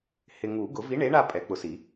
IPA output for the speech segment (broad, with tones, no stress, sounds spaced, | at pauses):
h ɪ˨ ŋ u˨˩˦ ɡ ʊ˨˩˦ v i˨˥ ɳ e˨˥ ɳ a˦˨ pʼ ɛ˨˩˦ k͡p ʊ˨ s i˨˩˦